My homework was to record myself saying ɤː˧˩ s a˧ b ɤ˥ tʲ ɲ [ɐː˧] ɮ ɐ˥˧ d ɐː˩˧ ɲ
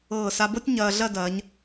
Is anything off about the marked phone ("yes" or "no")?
no